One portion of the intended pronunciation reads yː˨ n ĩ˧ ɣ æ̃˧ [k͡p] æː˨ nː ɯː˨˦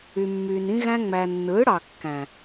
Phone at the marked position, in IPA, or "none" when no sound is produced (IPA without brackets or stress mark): ŋ͡m